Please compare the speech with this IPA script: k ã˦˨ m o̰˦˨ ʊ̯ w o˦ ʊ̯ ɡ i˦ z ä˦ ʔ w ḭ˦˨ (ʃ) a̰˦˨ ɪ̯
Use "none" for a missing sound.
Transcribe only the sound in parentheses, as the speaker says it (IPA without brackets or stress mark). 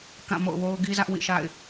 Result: ʃ